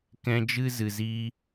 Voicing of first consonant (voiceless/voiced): voiceless